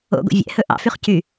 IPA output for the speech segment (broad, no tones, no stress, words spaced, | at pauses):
o̰ɡo̰ vʲɛ̰hɵ ʔɑ̰fyχ cy